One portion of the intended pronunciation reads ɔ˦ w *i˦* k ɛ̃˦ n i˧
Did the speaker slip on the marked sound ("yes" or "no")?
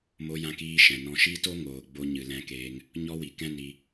yes